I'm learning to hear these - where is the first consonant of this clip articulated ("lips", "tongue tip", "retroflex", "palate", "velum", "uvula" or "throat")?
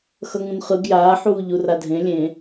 velum